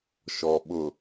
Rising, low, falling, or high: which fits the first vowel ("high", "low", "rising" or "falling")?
low